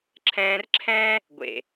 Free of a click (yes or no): no